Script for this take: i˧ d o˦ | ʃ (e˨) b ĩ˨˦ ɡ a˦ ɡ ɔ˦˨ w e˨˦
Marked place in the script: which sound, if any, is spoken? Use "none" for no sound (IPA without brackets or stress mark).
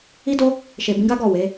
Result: e˨